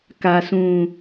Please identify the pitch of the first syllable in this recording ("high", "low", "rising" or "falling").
low